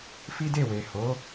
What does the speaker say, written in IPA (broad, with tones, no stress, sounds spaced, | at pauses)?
f i˦ d e˦˨ w e˨ h o˨˦